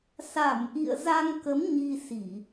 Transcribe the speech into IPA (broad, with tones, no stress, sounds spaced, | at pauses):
s a˧˩ m ʔ ḭ˧˨ ə̯ z a˧ ŋ k ə˨˦ m ɲ i˧ s i˧˩˨